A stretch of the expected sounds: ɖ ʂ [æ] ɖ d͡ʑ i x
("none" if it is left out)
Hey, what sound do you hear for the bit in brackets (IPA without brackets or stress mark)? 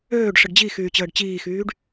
ə